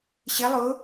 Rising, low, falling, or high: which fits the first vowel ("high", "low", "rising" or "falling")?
rising